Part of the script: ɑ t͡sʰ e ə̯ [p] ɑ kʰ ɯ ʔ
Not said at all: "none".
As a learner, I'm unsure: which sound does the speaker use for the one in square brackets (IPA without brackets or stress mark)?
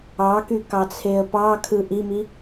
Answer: p